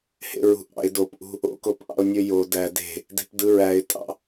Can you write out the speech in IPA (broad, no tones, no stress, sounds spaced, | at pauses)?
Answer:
h ḛ ɹ ṳ ʔ ɑ̰ ɪ̯ d o p ʔ ṳ | o̰ k o p ʔ ɑ̰ ʊ̯ nʲ ø j o d æ d e̤ | d e̤ p d ɯ ɹ æ ɪ̯ tʼ ɑ̰